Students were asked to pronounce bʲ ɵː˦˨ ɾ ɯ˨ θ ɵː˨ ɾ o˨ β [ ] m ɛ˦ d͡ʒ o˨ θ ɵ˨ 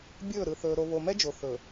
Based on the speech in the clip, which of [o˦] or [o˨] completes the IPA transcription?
o˨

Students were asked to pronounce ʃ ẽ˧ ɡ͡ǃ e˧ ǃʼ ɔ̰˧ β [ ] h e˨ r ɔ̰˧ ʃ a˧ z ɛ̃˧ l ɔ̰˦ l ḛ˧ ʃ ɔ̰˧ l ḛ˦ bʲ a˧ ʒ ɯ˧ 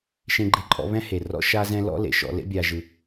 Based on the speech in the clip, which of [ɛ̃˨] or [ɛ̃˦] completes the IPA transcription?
ɛ̃˦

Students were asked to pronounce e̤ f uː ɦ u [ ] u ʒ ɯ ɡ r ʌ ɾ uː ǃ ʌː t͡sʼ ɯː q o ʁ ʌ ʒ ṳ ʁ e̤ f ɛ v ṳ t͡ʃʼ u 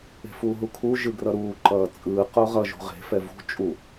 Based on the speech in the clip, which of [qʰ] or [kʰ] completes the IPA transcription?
kʰ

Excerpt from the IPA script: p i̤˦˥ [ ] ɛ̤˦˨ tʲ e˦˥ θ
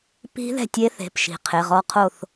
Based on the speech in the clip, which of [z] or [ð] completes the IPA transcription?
ð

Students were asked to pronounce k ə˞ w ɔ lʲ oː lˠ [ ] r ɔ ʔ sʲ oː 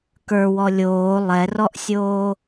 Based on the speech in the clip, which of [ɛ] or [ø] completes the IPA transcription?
ɛ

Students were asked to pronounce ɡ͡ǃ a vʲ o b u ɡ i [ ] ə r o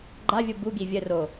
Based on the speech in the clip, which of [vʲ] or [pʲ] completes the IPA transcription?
vʲ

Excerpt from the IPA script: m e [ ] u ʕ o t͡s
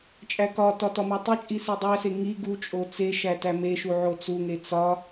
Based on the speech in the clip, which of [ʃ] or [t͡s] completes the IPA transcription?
ʃ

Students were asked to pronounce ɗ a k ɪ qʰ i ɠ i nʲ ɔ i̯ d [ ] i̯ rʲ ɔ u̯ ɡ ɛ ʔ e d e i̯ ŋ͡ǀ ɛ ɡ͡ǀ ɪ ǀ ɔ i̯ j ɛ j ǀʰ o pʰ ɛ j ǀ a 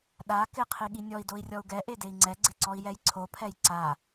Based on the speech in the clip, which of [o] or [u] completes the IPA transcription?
o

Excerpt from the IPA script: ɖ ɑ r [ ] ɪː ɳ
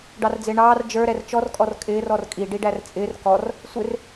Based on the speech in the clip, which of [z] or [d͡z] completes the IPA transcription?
d͡z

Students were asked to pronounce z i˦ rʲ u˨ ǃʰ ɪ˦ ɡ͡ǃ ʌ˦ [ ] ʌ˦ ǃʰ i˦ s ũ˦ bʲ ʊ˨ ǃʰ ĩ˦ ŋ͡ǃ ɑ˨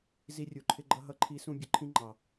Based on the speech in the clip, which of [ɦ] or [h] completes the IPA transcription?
ɦ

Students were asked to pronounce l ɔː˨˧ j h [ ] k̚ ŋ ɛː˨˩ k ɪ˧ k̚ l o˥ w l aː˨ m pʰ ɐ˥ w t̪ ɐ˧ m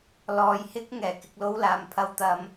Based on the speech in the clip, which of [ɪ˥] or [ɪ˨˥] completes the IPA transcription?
ɪ˥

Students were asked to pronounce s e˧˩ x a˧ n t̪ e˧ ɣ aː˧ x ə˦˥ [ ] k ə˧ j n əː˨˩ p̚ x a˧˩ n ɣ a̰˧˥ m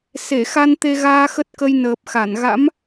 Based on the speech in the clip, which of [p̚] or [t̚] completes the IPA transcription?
t̚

